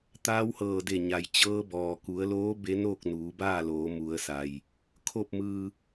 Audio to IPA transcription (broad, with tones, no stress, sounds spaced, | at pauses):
t̪ aː˧˥ w h ɤː˧˩ d e˧˩ ɲ a˩ j t͡ɕ ɤː˧˥ b ɔː˩ k u˩˧ ə̯ l oː˧˥ b e˧˥ n oː˥˨ k̚ n uː˩˧ b aː˥˨ l oː˩˧ m u˩˧ ə̯ s a˩ j | kʰ o˧˩ p̚ m ɯː˩